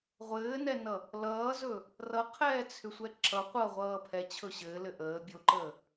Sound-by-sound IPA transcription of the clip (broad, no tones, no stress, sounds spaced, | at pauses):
ʁʷ ɘː n ɛ n ʌ | l ʌː z ɵ | r ʌ qʰ ɛː t͡sʰ ʏ sʷ ɛ ǁ ʌ qʷ ʌ ʁʷ ʌː pʰ ɛ t͡ɕʰ ɵ ɕ ɘː l ɘ ʔ əː bʲ o ǃ əː